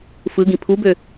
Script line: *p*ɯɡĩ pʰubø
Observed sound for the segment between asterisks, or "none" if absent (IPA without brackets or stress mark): f